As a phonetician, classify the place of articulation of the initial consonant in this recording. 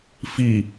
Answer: labial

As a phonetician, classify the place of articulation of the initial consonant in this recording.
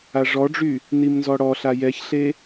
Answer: retroflex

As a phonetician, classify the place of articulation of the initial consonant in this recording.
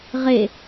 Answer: uvular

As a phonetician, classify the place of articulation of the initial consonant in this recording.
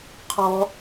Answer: uvular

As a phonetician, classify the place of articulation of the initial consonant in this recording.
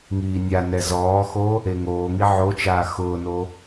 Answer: velar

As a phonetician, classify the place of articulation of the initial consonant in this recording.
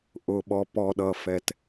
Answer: glottal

